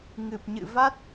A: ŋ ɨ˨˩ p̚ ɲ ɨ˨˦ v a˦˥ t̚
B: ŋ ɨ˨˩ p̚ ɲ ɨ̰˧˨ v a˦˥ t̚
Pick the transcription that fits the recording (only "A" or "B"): B